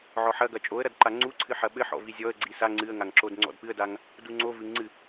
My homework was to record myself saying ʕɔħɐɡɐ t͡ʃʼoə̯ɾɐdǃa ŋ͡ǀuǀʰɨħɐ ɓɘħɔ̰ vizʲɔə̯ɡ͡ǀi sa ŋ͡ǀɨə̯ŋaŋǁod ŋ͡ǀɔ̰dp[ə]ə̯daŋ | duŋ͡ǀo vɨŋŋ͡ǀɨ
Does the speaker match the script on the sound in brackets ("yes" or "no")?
no